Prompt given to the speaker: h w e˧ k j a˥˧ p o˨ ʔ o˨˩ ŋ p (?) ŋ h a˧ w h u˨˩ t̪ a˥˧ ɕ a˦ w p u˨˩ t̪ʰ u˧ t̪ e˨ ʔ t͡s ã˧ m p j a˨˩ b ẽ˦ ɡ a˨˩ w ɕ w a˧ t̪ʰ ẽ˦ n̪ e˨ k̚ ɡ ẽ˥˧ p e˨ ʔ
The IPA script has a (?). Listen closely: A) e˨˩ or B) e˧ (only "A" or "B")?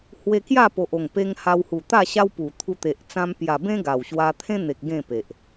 B